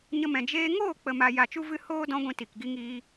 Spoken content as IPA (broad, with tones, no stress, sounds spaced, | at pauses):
ɲ ə˧ m ɛ̃˨ d͡ʒ eː˧ ŋ oː˦˨ k͡p ə˨ m a˨ j a˨ t͡ʃ u˧ v ɨ˧ h oː˧ d ɔ̃˦ ɡʷ ĩ˧ t i˨ k ɡ i˦ ŋ iː˦